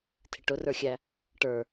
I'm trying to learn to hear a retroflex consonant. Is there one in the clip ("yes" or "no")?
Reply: yes